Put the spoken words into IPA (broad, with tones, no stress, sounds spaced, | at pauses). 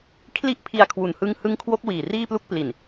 kʰ l i˥˩ ʔ pʰ i˧ a̯ kʰ w u˨˩ n h ɯ˦˥ ŋ h ɯ˦˥ ŋ kʰ w o˦˥ k̚ w iː˨˩ r iː˥˩ p l u˥˩ k̚ p l i˨˩ n